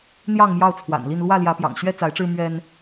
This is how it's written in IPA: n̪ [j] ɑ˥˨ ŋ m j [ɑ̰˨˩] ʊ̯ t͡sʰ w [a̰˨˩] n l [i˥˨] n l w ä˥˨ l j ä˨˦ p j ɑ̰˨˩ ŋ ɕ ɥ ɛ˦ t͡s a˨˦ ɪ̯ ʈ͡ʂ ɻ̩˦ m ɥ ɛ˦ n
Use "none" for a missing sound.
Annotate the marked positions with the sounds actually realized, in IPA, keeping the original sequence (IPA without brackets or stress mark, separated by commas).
j, ɑ˥˨, a̰˨˩, i˥˨